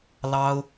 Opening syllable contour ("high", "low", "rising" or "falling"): high